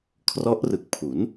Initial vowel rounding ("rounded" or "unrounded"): rounded